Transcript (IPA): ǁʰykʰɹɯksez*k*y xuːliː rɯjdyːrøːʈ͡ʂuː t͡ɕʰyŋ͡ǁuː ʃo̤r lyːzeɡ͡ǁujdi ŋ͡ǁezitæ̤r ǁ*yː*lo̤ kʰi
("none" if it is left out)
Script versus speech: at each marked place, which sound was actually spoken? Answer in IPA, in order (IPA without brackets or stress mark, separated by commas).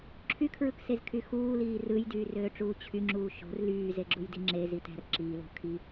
kʰ, iː